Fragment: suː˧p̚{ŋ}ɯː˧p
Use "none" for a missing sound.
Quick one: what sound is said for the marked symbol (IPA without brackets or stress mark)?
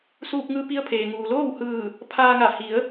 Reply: ŋ